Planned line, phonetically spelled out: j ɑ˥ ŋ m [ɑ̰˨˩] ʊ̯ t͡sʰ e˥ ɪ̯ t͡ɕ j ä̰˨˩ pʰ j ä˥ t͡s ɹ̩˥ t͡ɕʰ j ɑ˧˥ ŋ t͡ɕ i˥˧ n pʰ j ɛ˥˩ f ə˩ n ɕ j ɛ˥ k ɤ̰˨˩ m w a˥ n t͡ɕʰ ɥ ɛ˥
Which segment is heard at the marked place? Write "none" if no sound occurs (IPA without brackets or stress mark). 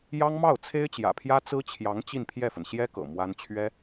ɑ˥˩